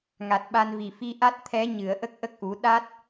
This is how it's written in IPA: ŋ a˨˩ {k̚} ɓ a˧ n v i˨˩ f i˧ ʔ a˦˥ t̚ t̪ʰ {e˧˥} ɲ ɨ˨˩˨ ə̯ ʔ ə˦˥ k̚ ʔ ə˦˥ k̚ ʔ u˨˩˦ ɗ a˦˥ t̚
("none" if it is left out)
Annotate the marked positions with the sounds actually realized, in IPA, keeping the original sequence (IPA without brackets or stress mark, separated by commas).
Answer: t̚, ɛ˧˥